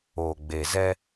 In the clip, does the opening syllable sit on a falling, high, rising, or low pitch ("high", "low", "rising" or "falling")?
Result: low